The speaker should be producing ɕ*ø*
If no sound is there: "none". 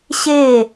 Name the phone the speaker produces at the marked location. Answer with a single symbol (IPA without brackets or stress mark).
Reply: e